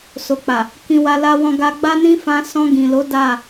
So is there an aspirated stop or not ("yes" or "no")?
no